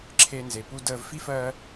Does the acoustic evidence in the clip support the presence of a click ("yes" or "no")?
yes